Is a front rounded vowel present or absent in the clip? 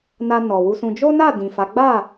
absent